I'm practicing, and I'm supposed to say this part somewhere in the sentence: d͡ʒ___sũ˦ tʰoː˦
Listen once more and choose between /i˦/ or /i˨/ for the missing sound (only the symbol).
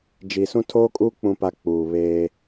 i˨